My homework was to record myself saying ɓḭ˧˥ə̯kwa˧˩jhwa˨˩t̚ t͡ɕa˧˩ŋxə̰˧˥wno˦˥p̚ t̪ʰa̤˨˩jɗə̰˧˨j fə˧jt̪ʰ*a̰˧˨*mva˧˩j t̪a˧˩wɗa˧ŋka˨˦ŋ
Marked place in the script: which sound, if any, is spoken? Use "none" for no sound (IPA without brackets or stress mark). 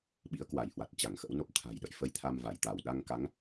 a˧